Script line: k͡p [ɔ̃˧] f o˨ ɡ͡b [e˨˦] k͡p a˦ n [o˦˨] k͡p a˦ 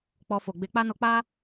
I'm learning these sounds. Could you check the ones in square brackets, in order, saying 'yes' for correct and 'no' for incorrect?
no, yes, no

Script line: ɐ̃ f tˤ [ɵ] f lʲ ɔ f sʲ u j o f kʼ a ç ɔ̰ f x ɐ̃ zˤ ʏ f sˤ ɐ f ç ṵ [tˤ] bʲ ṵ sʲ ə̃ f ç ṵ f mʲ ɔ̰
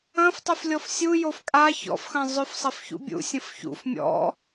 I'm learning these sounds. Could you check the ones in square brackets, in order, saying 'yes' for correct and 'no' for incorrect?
no, no

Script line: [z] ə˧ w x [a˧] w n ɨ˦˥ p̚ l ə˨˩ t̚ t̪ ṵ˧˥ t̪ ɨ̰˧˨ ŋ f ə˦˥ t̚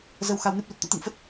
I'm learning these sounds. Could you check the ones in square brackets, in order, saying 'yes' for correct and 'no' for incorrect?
yes, yes

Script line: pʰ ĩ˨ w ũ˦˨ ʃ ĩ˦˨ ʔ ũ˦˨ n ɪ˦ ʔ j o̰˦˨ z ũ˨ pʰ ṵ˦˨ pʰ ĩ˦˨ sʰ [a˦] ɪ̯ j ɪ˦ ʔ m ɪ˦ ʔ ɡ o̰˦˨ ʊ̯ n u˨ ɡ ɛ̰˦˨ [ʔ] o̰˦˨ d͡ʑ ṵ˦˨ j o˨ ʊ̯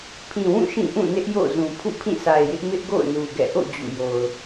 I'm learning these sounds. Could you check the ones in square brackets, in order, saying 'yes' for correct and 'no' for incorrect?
no, yes

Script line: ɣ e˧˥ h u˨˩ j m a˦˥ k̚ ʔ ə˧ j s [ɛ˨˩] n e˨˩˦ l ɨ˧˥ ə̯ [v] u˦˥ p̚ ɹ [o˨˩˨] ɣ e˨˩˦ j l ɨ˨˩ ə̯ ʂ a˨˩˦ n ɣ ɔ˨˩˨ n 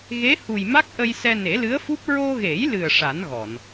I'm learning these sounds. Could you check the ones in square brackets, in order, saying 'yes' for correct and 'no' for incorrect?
no, no, no

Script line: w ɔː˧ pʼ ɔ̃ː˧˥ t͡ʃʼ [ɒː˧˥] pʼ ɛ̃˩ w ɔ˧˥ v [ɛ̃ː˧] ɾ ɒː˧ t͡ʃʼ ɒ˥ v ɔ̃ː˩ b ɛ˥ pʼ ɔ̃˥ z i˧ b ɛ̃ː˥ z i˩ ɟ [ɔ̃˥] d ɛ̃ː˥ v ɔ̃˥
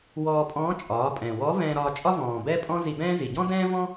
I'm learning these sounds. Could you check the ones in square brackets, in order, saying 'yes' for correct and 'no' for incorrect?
no, yes, yes

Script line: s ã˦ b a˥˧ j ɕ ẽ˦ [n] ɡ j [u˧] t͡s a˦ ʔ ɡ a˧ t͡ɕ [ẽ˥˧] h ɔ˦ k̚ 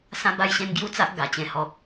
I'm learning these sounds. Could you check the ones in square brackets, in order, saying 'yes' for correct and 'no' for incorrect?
yes, no, no

